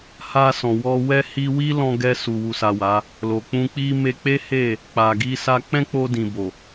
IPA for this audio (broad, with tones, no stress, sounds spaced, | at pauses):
h a˧ s ɔ̃˨ w ɔ˧ w ɛ˦ h i˧ w i˦ l ɔ̃˧ ɡ ɛ˧ s u˨ w u˨ s a˨ w a˨˦ | l o˨ k͡p ũ˧ k͡p i˦ m e˧ k͡p e˦ h e˦˨ | k͡p a˨ ɡ i˧ s a˧ k͡p ɛ̃˦ k͡p o˧ d ĩ˨ b o˨